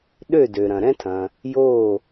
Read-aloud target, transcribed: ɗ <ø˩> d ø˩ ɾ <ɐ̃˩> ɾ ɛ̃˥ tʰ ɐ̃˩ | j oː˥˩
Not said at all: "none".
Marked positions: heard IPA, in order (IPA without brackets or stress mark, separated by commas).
ø˥˩, ɐ̃˩